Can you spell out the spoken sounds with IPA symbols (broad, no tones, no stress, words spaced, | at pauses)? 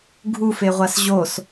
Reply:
ɡʱufeʁʷas ʑos